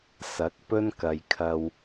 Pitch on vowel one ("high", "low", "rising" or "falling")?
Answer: rising